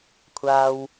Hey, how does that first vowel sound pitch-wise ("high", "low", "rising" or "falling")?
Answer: high